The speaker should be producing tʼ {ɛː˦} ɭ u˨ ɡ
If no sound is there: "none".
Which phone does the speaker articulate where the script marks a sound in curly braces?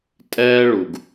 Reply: ɛː˦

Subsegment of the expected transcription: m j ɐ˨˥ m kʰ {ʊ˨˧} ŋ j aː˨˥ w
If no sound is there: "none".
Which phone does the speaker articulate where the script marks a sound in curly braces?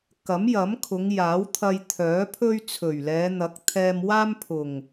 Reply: ʊ˨˧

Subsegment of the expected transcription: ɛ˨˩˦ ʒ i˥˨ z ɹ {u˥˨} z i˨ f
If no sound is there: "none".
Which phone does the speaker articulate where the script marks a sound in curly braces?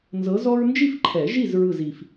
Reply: ɯ˥˨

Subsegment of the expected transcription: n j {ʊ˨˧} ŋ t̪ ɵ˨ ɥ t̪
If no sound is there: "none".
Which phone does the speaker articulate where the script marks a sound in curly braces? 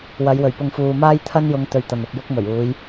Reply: ʊ˨˧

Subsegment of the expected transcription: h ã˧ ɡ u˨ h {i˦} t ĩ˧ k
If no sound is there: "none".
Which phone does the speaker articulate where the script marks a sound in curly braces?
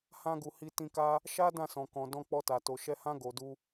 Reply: i˧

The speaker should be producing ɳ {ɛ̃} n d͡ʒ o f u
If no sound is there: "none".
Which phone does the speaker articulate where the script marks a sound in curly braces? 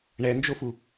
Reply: ɛ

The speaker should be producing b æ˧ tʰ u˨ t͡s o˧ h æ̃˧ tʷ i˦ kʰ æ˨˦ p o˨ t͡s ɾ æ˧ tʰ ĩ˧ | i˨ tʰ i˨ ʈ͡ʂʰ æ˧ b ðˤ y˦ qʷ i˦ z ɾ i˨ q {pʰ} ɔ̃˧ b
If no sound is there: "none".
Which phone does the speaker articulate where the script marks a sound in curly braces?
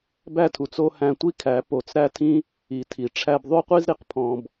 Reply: pʰ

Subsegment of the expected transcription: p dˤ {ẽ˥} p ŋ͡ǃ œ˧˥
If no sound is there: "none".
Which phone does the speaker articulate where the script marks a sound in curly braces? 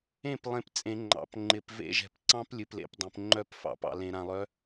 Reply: ẽ˨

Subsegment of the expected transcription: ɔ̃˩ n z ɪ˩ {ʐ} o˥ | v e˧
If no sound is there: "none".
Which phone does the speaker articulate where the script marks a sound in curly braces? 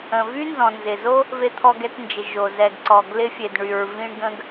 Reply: z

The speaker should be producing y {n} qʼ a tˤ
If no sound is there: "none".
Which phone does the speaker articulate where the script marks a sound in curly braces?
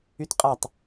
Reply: t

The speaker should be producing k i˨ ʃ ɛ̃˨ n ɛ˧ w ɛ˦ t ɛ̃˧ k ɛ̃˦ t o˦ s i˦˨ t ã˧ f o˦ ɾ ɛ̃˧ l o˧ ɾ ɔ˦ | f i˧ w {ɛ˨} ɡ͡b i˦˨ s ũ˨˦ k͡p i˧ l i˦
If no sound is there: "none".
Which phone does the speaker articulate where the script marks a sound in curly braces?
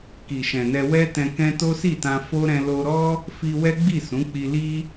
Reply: ɛ˦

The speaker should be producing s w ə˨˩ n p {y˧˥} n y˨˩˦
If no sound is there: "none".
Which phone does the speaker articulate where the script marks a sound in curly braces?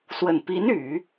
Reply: i˧˥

